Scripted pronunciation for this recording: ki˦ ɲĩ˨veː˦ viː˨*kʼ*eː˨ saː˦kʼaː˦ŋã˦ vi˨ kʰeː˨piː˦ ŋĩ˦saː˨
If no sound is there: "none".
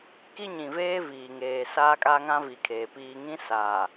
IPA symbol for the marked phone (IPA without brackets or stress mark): ŋ